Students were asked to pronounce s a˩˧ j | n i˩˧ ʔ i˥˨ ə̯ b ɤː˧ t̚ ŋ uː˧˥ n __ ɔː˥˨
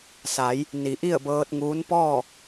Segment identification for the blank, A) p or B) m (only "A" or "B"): A